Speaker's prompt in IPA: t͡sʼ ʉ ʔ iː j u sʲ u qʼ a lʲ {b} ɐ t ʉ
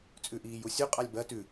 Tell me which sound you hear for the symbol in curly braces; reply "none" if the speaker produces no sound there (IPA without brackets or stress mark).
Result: b